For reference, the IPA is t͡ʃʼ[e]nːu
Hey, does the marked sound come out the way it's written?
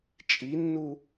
no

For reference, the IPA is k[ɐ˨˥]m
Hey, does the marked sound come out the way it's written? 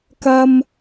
no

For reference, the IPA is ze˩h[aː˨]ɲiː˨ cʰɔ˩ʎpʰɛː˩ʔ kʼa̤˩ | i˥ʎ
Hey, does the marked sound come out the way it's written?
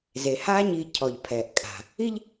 no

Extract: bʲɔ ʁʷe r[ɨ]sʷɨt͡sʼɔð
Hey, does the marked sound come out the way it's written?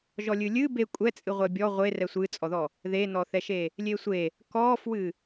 no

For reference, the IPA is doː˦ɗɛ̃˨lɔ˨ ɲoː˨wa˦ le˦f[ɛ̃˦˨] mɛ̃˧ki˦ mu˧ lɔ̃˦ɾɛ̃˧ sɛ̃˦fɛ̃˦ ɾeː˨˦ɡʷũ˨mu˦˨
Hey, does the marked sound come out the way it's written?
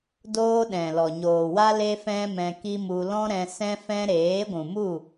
no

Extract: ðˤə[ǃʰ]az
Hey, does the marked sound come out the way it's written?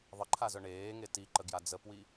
yes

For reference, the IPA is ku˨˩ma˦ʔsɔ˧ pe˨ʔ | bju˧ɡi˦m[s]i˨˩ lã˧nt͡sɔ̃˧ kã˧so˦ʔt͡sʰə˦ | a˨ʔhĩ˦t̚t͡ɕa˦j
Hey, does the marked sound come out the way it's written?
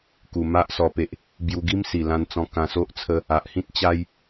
yes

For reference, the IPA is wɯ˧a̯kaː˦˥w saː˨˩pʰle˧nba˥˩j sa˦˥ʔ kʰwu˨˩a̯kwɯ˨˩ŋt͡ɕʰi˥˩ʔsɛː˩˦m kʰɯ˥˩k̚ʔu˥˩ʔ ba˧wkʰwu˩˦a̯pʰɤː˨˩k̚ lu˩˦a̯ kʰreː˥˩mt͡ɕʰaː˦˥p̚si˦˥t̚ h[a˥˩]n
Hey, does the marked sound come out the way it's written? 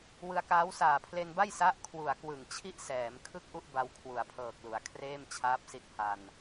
no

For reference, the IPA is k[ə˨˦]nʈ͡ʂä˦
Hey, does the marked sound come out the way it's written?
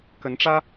yes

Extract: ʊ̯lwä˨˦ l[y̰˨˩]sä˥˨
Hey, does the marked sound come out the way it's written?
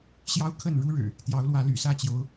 yes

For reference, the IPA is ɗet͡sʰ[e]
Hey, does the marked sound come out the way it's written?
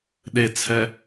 no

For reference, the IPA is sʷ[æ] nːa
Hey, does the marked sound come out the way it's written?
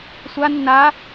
no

